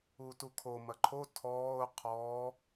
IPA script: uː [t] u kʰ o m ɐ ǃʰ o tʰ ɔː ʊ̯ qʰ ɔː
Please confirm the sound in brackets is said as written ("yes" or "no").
yes